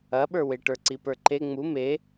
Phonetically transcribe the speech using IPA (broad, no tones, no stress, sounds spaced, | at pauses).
ɐ ɓ ə˞ w e ʈ ə˞ ǀ i p ə˞ ǃ e ŋ͡m u m e